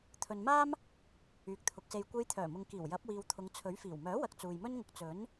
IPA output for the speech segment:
t̪ʰ ɵ˨ n m aː˥ m | yː˨ k̚ t̪ʰ ʊ˨˥ k̚ s e˧ j kʷ e˧ j t̪ʰ œː˨˩ m ʊ˨ ŋ k iː˨˩ w j ɐ˨˥ p̚ w iː˨ w t̪ʰ ʊ˨˧ ŋ t͡sʰ ɵ˨˥ ɥ f iː˨˩ w m œː˨˥ w ɐ˨ k̚ t͡s uː˨ j m ɵ˥ n ŋ ʊ˧ k̚ t͡s ɵ˨˥ n

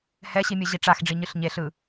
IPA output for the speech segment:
h ɛ ɕ i mʲ ɯ ʑ i ʈ͡ʂ a x ɖ͡ʐ i ɲ ɯ ɬ ɲ e ɬ ɯ

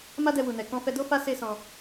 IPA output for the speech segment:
m a˦ d ɛ˧ w u˨ n ɛ˨ k ɔ̃˧ f ɛ˧ d o˦ f a˦ s e˦ s ɔ̃˧

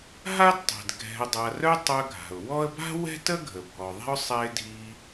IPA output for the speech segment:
ɦ a˥ d tˤ ɛ̤˩ d ɡʱ ɛ̤˨ ʊ̯ dˤ a˨ r œ˦ tˤ œ˦ ɡʱ a̤˩ ʊ̯ w ɔ˥ ə̯ b a̤˥ w ɛ̤˥ t ə˥ ɡʱ ə˩ bʱ ɔ˩ ðˤ ɛ̤˥ ʊ̯ sˤ ɛ˦ ɪ̯ dʱ i˦

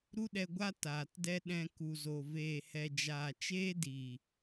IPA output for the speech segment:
ɾ u˦ ɗ ɛ˧ ɡʷ a˦ t aː˨ t d ɛ˦ ɗ ɛ̃˧ k u˨ z o˨ v eː˨ h ɛ˨ d͡ʒ aː˨ t͡ʃ eː˦ d i˨

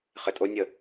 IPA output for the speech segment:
χ ɪ tʼ o nʲ ə

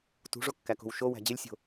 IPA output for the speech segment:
t ṳ ʐ o kː æ k o̤ w ʃ o w æ̤ d͡ʑ e lʲ sʲ o̤

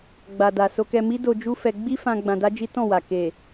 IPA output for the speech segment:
ɡ͡b a˨ d a˨ s o˧ k ɛ˧ m i˦ d o˧ d͡ʒ u˦ f ɛ˧ ɡ͡b i˦ f ã˧ ɡ͡b ã˧ d a˦ d͡ʒ i˦ t ɔ̃˦˨ w a˨ k e˨

